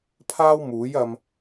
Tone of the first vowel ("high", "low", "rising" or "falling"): high